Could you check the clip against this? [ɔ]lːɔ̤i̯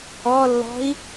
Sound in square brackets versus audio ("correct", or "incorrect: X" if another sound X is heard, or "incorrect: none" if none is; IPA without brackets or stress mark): correct